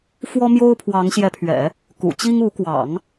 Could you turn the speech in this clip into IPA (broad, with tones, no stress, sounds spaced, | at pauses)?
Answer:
f w ɔ˥ m j o˥ ʊ̯ pʰ w ɑ˧˥ ŋ ɕ j ɛ˧˥ pʰ ɥ ɛ̰˨˩˦ | k ṵ˨˩ t͡ɕ i˥ ŋ u˧˥ k w ɑ̰˨˩˦ ŋ